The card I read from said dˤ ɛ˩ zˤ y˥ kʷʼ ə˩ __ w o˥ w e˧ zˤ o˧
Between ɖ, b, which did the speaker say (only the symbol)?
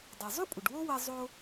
ɖ